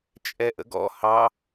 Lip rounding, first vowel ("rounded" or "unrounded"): unrounded